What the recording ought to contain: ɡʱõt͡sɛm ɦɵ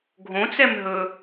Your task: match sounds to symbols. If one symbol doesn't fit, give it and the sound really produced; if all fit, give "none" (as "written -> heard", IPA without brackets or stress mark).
none